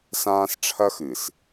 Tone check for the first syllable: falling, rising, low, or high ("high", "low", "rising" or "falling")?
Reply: high